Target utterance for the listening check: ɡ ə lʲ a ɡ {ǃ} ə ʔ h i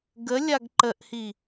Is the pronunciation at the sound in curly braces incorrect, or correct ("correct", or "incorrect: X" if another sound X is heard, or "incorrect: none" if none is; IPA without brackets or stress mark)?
correct